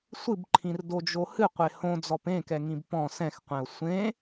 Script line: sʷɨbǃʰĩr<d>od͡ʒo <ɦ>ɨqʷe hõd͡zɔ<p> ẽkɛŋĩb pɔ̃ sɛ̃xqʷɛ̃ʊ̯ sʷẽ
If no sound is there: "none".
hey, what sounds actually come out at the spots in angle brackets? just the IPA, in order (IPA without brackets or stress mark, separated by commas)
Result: d, h, p